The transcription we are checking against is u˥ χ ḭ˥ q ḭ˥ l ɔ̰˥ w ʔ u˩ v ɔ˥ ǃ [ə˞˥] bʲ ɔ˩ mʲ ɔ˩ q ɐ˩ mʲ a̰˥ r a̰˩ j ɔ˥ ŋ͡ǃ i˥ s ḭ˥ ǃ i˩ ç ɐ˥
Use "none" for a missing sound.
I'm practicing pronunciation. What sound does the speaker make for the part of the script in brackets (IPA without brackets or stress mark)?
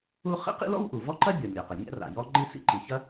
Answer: ɐ˥